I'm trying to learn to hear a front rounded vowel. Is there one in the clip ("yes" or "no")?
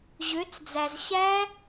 yes